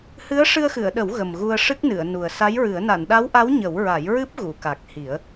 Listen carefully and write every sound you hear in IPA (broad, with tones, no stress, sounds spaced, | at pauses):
h ɨ˧˥ ə̯ ʂ ɨ˧ ə̯ x ɨ˨˩˨ ə̯ ɗ ə˨˩˦ w ɣ ə˨˩ m ɣ u˧ ə̯ ʂ ɨ˦˥ k̚ n ɨ˨˩˨ ə̯ n u˨˩ ə̯ s a˧˥ j ɹ ɨ˨˩˦ ə̯ n a˨˩˨ n ɗ a˧˥ w ʔ a˧˥ w ɲ ə˨˩˦ w ɹ a˨˩˦ j ɹ ɨ˦˥ p̚ ɣ u˨˩˨ k a˨˩ k̚ h i˨˩˦ ə̯